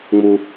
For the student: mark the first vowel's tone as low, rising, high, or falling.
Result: low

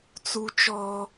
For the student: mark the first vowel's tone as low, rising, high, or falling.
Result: high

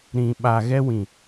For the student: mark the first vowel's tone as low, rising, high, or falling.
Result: low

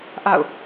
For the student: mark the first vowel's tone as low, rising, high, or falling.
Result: falling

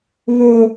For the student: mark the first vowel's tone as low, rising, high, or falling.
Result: high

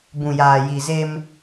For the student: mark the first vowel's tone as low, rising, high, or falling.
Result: low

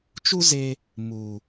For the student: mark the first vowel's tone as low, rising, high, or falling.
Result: high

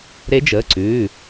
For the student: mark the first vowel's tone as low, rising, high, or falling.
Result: rising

